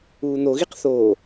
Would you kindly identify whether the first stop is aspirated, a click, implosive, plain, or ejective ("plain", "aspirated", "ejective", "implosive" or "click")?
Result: plain